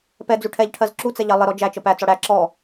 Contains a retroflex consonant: yes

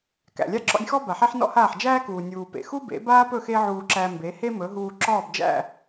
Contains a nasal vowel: no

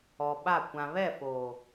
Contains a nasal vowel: yes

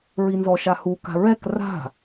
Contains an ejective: no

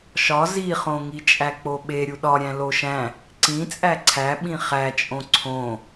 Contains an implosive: yes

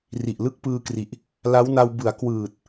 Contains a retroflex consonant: no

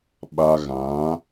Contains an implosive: yes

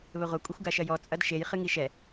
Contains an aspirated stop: no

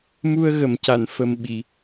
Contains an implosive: yes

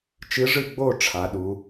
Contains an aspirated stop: yes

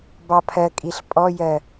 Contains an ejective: yes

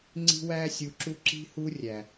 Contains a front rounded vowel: no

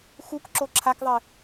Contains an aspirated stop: yes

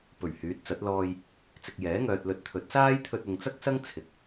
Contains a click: no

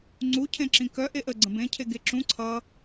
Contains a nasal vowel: yes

